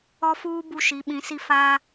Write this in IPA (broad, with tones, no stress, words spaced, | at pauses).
ɔ˦fuː˦ bu˦ʃi˨˦ɓĩ˨˦si˦ fa˦